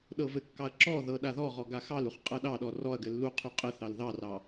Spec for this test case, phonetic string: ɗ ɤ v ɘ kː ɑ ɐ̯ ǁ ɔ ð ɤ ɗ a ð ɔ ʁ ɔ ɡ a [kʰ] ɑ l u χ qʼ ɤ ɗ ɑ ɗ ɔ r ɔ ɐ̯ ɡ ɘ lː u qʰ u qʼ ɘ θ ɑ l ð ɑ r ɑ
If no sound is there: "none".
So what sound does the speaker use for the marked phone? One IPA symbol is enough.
x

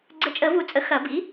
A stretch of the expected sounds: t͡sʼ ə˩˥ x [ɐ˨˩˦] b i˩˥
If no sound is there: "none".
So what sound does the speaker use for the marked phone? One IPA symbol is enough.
ɐ˨˩˦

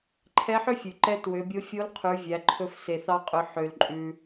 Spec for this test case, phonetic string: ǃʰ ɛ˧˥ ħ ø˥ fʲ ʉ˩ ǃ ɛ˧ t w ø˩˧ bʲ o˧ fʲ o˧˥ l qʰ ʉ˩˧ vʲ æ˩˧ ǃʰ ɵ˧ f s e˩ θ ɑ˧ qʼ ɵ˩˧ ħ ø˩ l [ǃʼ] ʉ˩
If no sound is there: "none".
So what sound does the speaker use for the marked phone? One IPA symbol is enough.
ǃʼ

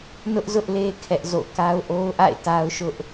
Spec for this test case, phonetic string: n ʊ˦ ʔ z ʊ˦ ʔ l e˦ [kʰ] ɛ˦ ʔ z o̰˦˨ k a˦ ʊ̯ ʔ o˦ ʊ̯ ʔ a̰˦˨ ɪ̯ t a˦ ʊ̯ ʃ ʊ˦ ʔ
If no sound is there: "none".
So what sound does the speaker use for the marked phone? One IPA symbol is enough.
kʰ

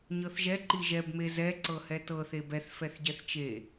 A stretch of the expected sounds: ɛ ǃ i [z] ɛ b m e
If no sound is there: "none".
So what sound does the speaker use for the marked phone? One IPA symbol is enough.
ʒ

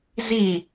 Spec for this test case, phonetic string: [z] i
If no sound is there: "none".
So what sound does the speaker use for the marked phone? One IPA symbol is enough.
z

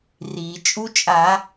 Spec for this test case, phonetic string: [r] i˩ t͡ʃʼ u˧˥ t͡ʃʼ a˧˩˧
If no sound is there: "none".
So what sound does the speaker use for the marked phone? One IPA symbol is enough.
r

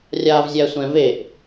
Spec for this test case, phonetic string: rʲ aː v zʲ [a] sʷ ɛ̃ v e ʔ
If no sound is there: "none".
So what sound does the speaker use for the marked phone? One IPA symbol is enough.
æ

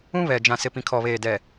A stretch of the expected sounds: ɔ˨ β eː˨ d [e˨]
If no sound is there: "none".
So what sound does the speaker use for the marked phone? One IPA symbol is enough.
ɛ˨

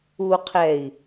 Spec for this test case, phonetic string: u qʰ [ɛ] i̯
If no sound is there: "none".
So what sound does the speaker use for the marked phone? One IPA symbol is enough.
ɛ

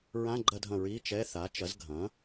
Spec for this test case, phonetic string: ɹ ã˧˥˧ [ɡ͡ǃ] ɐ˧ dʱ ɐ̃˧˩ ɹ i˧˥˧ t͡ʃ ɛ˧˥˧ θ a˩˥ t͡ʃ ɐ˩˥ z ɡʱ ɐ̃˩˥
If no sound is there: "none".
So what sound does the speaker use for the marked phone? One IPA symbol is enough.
ɡ͡ǃ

